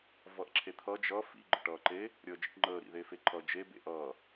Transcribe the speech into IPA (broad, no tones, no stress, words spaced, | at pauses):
vʌʔǁʰet̪ʰʌ d͡ʒʌ fḭ ɡ͡ǃə̰ʈʌːǃe | ɾʲəːd͡ʒḭʈŋ͡ǃəː ɾḭðefeǃʰʌ d͡ʒe bḛʔʌː